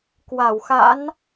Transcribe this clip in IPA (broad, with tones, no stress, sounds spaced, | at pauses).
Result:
k w a˧˩ w x a̰˧˥ n